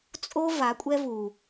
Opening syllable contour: high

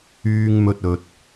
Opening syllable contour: high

